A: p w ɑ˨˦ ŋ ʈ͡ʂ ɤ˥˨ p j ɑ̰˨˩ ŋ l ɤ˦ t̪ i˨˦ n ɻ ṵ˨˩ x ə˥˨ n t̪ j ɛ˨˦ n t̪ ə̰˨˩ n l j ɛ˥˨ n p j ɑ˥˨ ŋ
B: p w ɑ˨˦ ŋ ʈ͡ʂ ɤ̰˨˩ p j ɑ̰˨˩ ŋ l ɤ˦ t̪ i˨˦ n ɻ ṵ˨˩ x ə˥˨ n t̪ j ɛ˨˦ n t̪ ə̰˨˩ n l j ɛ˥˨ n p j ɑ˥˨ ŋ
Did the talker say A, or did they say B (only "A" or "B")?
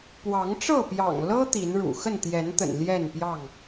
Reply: A